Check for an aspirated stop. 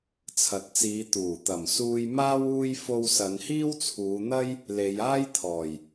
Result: present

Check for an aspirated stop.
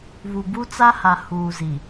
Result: absent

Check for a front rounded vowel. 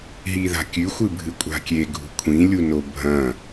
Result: absent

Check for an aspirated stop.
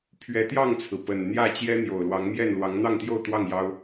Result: present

